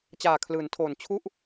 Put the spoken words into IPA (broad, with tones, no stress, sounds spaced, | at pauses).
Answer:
t͡ɕ aː˨˩ kʰ l ɯː˩˦ n tʰ oː˨˩ n t͡ɕʰ u˥˩ ʔ